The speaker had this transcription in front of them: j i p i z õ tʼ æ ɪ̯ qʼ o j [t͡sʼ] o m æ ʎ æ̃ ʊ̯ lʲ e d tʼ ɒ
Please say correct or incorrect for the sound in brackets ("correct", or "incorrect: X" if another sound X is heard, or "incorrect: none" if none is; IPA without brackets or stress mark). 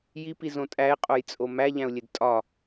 correct